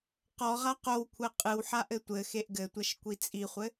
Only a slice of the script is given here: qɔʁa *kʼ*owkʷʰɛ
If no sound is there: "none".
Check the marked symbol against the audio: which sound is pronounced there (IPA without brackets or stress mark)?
q